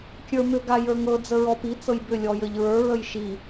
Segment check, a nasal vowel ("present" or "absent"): absent